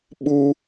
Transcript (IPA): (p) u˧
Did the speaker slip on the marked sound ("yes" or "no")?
yes